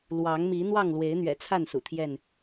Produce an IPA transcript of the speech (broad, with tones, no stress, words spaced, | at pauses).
lwɑ˨˦ŋmi˨˦ n̪wɑ˥˨ŋlwe˨˦ɪ̯n̪ɥɛ̰˨˩t͡sʰa˥˨n sṵ˨˩t̪ʰjɛ˥˨n